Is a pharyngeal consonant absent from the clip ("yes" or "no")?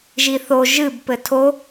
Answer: yes